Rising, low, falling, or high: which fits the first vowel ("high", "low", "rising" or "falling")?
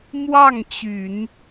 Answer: falling